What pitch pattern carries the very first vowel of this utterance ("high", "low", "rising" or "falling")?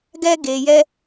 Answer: high